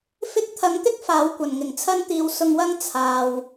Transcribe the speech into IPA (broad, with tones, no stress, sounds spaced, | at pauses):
f ɪ˥ k̚ t̪ʰ ɐ˨˧ ŋ t̪ ɪ˥ k̚ f aː˨˧ w kʷ ɐ˨˩ n ŋ ɪ˨˩ ŋ t͡sʰ ɐ˧ n t̪ iː˨ w s ʊ˧ ŋ w ɐ˥ ŋ t͡sʰ aː˨ w